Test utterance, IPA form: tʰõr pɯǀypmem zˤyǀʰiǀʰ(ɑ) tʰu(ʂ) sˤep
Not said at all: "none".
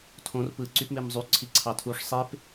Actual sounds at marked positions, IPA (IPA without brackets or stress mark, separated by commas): ɑ, ʂ